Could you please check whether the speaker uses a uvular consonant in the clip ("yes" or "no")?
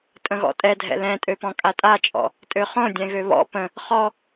yes